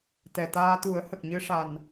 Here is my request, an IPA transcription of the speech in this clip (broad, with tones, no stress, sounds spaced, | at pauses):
t̪ ɛ˨˩ t̪ aː˧ t̪ u˨˩˦ ə̯ h ə˨˩ k̚ ɲ ɨ˧ ʂ a˨˩ n